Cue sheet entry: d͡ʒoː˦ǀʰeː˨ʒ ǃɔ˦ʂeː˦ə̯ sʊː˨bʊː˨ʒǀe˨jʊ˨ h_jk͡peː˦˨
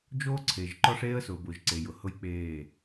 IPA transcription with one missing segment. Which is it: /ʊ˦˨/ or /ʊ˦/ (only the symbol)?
ʊ˦